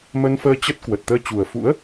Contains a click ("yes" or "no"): no